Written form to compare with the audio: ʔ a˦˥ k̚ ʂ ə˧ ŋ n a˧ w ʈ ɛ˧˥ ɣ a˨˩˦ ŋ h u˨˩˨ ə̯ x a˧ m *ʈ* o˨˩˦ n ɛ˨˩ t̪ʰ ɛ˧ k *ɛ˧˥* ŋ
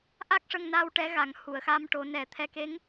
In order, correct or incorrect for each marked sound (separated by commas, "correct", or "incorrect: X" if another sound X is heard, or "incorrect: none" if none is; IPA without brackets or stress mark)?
correct, incorrect: e˧˥